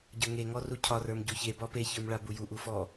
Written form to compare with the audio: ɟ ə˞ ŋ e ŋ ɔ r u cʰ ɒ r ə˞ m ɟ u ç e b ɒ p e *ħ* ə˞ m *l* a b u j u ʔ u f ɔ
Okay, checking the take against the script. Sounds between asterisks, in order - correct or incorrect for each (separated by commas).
incorrect, incorrect